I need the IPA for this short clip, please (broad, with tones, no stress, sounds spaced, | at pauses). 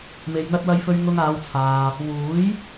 m e˨ j n̪ ɐ˧ t̚ w ɐ˧ j f ɵ˧ ɥ ŋ ʊ˧ ŋ aː˨˧ w t͡sʰ aː˨ | w uː˨˥ j